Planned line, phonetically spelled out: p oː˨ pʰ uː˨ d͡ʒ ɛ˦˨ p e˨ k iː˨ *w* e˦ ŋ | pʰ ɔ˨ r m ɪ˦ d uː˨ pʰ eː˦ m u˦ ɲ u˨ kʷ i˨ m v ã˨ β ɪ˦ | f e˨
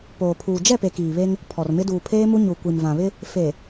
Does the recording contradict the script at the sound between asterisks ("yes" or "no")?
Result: yes